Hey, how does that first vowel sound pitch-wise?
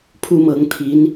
high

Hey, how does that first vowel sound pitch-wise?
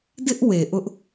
high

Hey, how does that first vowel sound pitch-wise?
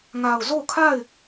low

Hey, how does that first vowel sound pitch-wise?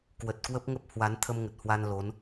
low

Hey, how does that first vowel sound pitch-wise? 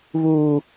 high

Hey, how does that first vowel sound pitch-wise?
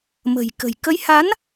low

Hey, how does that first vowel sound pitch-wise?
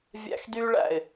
high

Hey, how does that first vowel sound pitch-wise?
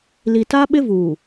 low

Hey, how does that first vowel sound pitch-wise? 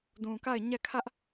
low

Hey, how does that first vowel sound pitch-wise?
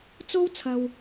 high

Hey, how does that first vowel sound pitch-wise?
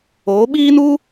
rising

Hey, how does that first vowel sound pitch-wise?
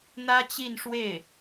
high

